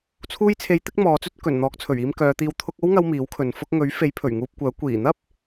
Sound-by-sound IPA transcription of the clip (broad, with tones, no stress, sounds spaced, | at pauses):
t͡sʰ uː˧ j t͡sʰ e˨˧ j t̪ ɪ˥ k̚ m ɔː˨˧ t͡s ɵ˥ t̚ k ɵ˨˩ n n̪ ɔː˨˥ k̚ t͡sʰ ɵ˨˩ ɥ iː˧ m k œː˨˧ t̪ iː˧ w t̪ʰ ʊ˧ k̚ o˥ w ŋ ɐ˧ w m iː˨˥ w kʰ ɵ˨ n f ʊ˧ k̚ ŋ ɵ˨˥ ɥ f e˨˥ j pʰ ɵ˨˩ ɥ ŋ uː˧ p̚ kʷ œː˨˥ kʷ iː˨˩ n̪ ɐ˥ p̚